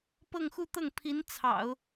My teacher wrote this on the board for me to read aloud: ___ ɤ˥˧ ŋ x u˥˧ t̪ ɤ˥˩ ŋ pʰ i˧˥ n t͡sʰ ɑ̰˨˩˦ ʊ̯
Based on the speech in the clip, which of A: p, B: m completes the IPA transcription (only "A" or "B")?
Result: A